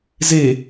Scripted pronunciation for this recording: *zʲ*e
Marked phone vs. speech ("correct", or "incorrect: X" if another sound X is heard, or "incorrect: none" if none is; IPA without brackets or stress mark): incorrect: z